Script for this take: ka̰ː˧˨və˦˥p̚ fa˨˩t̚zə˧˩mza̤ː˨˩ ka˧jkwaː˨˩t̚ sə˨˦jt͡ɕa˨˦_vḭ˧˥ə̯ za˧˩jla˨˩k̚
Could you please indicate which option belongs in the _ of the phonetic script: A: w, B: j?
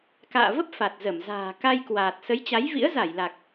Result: B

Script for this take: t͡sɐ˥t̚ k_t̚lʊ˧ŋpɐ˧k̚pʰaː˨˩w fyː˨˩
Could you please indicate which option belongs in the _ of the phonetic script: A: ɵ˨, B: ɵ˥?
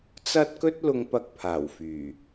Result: B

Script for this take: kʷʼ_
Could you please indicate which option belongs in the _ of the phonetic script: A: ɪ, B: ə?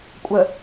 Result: B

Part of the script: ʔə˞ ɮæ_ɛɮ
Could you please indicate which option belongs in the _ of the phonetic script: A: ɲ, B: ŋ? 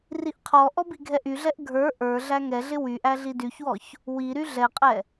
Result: B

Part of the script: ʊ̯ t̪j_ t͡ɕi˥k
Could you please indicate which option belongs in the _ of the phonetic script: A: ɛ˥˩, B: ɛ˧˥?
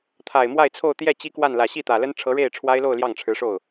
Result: A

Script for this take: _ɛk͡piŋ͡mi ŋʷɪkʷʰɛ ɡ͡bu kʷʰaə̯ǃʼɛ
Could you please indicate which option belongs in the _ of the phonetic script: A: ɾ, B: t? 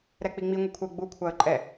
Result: A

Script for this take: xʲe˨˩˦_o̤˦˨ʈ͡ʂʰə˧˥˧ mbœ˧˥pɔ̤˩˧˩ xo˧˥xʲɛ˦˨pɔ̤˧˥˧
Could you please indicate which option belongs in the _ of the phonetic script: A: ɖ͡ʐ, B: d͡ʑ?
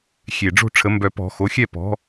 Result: A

